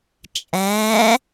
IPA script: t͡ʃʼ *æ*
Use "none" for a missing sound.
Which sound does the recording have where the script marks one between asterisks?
æ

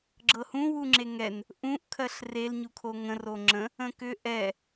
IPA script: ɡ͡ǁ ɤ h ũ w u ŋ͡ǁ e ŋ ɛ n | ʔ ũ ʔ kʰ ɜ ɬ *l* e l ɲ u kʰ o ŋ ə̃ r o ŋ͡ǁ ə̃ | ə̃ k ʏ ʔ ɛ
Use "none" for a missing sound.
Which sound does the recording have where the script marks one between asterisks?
r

